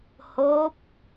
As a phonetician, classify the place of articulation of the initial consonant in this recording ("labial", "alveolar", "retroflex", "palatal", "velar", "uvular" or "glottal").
glottal